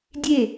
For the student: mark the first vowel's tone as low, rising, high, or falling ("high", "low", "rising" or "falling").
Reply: falling